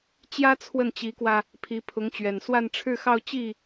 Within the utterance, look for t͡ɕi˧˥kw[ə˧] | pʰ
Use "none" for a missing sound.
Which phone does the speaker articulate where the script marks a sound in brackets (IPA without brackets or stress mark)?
ä˧